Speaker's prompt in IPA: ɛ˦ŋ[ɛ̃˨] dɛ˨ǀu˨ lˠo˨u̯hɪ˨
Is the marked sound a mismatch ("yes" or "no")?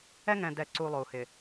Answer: no